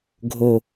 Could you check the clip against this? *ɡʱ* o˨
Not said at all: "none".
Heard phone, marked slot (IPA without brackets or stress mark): ɡʱ